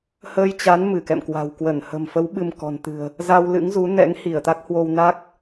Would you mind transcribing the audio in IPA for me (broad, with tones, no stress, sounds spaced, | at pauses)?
h əː˧ j t͡ɕ a˨˦ n m ɨ˧˩ k ɛ̰˧˨ m k w a̤˨˩ w k w ə˧˩ n h ə̤˨˩ m f ə˨˦ w ɓ ɨ˧ m k ɔ̤˨˩ n t̪ ɨ̤˨˩ ə̯ | z a˧ w l ɨ̰˧˥ ŋ z u˨˦ n ɛ̰˧˥ ŋ h i˧˩ ə̯ t̪ a˦˥ k̚ h w o˧ w n a˦˥ k̚